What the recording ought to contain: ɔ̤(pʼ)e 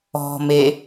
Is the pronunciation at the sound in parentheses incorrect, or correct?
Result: incorrect